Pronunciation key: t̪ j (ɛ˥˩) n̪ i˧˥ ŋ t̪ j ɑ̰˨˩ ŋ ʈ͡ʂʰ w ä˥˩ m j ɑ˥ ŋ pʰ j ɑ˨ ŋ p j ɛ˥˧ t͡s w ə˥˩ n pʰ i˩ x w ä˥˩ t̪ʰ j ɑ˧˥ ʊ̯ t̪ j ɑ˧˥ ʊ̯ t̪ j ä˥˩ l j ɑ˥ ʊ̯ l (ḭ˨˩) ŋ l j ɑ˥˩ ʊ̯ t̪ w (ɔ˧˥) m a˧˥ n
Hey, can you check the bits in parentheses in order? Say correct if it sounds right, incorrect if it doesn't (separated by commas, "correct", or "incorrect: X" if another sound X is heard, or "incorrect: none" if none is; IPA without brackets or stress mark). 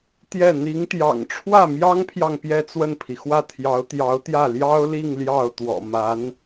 correct, incorrect: i˥˧, incorrect: ɔ̰˨˩